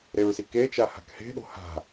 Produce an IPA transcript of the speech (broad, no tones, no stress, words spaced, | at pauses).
ɾeɹsike t͡ʃaha̤khe̤ ɗo̤ha̤